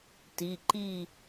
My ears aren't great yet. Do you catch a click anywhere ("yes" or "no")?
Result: yes